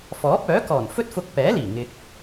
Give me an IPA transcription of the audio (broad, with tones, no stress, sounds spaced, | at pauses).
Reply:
f ɔː˨˥ p̚ œː˨˥ k ɔː˨˩ n f ɵ˥ t̚ f ʊ˧ k̚ p ɛː˨˥ l iː˨˩ ŋ ɪ˧ k̚